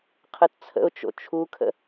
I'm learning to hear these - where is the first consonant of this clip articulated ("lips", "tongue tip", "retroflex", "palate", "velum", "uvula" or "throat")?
uvula